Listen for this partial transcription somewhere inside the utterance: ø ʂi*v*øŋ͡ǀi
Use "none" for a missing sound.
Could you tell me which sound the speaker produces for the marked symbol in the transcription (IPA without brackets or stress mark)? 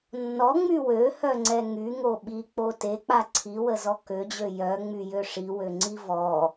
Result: w